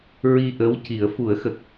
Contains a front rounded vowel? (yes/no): no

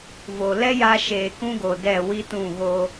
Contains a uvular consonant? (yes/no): no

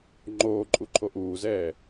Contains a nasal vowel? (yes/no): no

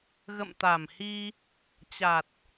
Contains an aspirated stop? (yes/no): no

